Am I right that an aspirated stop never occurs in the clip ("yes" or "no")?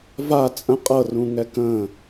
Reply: yes